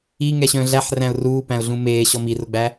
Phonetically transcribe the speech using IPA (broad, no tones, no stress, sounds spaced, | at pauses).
i ŋ ɛ ɕ œ̃ː ɮ æ ħ r æ̃ ʊ̯ r uː p æ̃ ʊ̯ ɮ ũ m eː ɕ ɔ m i r ʊ ɡ͡b æ